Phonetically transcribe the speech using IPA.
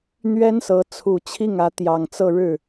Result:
n̪ ɥ ɛ˥ n s ɤ˧˥ t͡sʰ u˨˩ t͡ɕʰ i˥˩ ŋ ä˧˥ t̪ j ɑ˨˩ ŋ t͡s ɤ˥˧ ɻ ɻ̩˥˩

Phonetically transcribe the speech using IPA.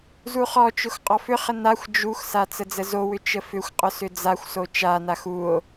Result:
z u χ ɔ t͡ʃ ʊ x qʼ ɔ f ʏ χ ə n a xʷ d͡ʒ u x s a t͡s ə d͡z ə z o w ʏ t͡ʃ ə f ʏ xʷ qʼ ʊ s ʏ d͡z a xʷ s o t͡ʃ a n a x u o̯

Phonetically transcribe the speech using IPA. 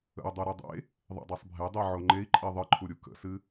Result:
ə̰ u̯ dˤ u ɾ o dˤ ḛ | ðˤ ḭ dˤ e sˤ bʱ e dˤ i ʕ o ŋ͡ǃ e i̯ ǃʼ i ðˤ ɨ ǃʰ u ɾʲ u k ə̰ s ɨ

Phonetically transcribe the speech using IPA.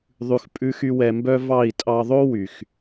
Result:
ðˤ ʉ˧ x pʼ ʉ˦ x y˦ w ɛ˧ m b œ˦ v ɑ˦˨ i̯ tʼ ɑ˧ ðˤ o˦ w y˨ x

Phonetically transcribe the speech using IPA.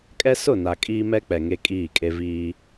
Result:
kʼ ɛ˦ s ʊ˦˨ n a˨ kʼ iː˦ m ɛ˦ k͡p ɛ˨ ŋ e˦ kʼ iː˦˨ kʼ e˦ v iː˦

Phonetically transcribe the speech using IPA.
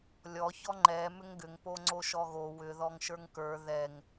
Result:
lʲ ɔ ç ɔ ŋ͡ǃ ɛ m ʏ ŋ ɡ ʏ ŋ p o ŋ͡ǀ o ʃ ɔ ɣ o w ʏ ð ɔ ŋ ʃ ə˞ ŋ k ə˞ ð ɛ ŋ

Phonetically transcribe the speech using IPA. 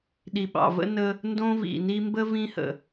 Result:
ɗ i˨ ɓ ɑ̰˨ v ə̰˦ n ə˦ | n d õ˦ v ḭ˨ n i˦ m b ə˥ v ĩ˦ h ə̰˩

